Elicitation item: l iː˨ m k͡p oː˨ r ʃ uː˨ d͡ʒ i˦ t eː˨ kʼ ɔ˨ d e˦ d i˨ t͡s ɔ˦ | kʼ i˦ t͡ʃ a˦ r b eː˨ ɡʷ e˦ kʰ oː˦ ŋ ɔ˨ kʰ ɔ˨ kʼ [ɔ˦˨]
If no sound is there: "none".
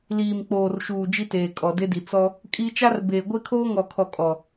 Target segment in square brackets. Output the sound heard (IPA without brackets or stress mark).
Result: ɔ˨